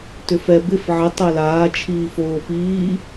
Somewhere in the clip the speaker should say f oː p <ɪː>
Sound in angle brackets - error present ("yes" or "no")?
yes